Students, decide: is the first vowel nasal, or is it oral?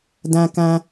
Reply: nasal